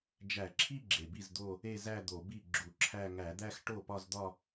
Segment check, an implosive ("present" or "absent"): absent